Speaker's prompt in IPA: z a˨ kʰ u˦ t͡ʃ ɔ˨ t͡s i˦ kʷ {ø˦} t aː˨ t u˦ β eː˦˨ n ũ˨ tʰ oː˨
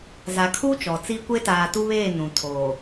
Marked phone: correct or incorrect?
incorrect